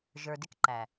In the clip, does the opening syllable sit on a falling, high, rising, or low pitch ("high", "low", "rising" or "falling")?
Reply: low